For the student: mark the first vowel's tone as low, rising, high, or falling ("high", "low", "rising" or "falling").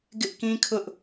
high